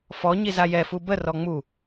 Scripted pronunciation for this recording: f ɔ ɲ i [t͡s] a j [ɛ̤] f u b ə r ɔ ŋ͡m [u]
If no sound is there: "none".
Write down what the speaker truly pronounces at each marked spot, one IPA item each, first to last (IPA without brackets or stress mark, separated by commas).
z, ɛ, u